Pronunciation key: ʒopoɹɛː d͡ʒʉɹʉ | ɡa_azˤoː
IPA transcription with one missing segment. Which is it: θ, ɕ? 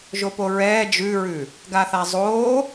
θ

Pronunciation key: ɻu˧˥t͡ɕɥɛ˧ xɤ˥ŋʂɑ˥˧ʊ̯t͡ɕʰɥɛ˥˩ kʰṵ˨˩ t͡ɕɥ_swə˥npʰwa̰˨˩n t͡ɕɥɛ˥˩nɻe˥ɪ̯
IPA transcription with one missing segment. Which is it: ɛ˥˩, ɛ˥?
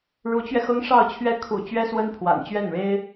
ɛ˥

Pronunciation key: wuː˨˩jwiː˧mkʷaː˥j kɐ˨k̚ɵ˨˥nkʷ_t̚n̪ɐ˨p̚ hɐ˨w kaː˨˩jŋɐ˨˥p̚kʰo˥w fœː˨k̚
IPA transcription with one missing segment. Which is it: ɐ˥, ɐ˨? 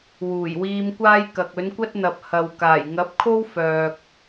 ɐ˥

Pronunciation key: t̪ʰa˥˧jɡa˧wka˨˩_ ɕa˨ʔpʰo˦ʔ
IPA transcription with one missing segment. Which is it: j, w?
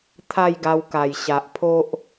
j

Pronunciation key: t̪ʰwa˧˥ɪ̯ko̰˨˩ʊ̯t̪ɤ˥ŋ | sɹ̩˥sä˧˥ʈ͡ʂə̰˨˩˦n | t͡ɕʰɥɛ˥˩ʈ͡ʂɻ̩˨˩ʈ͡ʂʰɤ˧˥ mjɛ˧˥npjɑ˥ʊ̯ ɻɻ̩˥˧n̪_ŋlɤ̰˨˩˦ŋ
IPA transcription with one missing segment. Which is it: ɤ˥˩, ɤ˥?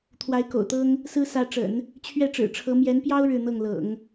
ɤ˥˩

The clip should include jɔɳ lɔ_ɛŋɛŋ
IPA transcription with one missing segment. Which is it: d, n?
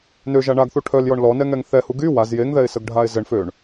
n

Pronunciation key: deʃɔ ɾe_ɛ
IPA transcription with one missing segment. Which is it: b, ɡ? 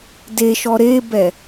b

